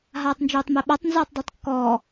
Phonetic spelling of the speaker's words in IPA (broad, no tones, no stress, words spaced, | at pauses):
ɦaːtˤnd͡ʒoːtˤmeɓatˤ nzoːtˤdˤəːtˤkːɔː